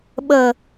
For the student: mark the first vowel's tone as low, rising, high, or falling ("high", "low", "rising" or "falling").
low